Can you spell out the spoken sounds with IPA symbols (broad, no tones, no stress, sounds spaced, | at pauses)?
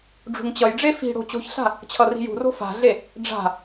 ɖ͡ʐ ṳ ŋ t͡ɕ ʌ j ɖ͡ʐ e f i̤ ɽ o̤ t͡ɕ o̤ ç ɬ a̤ | t͡ɕʰ ʌ r i̤ j ṳ r o̤ f a̤ ɮ e | ɖ͡ʐ a̤